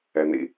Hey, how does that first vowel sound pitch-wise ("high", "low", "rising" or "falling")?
low